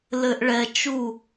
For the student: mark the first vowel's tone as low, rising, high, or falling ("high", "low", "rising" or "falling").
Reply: low